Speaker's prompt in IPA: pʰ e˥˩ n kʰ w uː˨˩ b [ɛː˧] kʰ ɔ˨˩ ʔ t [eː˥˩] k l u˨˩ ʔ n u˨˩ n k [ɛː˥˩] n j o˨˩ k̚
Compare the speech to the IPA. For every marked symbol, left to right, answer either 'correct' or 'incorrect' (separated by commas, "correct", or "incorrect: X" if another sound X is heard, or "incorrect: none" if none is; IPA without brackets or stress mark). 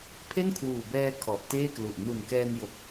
correct, correct, incorrect: ɛː˧